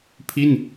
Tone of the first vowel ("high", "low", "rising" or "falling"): falling